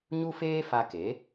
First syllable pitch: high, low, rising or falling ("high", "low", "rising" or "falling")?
high